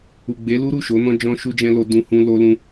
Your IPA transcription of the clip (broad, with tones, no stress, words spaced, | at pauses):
u˨ɡ͡be˨˦lu˦ɾu˦˨ ʃo˨˦nɔ̃˦ d͡ʒɔ̃˦ʃu˦d͡ʒɛ̃˦ lo˧dũ˧hũ˧ lo˧ lũ˧